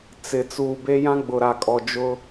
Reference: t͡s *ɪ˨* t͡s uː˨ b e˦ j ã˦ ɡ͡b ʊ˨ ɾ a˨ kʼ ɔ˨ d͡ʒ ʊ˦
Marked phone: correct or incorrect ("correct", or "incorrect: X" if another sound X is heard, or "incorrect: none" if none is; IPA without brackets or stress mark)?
correct